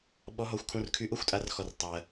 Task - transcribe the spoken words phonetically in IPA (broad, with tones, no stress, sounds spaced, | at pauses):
ɓ ɔ˨˥ ɦ ɔ˨˥ xʷ kʰ ũ˧˥˧ r kʰ y˧˥˧ ʔ o˥ xʷ tʼ a˨˥ r x ɔ˨ r tˤ ɜ˨